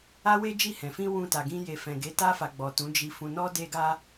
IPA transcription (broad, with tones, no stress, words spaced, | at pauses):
a˦we˦ d͡ʒi˦˨hɛ̃˨ fĩ˧ wũ˧ta˨ɡĩ˧ je˨fɛ̃˨ɡe˨˦ ta˧fa˨ ɡ͡bɔ˨ tũ˨˦d͡ʒi˧ fũ˧nɔ˦de˦ɡa˦